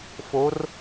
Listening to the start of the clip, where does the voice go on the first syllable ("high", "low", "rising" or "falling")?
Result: rising